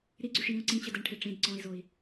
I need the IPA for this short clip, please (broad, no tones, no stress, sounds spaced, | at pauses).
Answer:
ɾ i ɡ͡ǀ y ʂ j ĩ u̯ ǀ ĩ t͡ɕ ɘ d ɘ ɳ ʈʰ i ʈ͡ʂ ĩ d ǀ ɔ̃ i̯ z o i̯